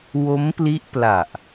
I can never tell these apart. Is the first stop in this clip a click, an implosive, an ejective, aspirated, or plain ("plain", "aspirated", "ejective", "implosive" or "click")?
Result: plain